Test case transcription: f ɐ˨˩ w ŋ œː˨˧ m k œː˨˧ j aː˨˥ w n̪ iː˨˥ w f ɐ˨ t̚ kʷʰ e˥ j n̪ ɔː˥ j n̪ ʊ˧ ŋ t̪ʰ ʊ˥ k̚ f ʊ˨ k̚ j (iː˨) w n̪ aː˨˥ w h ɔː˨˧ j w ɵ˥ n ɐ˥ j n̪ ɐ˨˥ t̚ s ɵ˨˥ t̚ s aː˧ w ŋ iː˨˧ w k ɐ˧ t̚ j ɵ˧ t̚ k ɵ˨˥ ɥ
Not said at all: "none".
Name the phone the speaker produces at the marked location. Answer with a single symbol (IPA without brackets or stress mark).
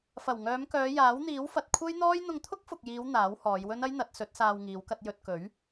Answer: iː˨˧